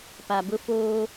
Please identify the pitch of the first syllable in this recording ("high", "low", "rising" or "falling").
low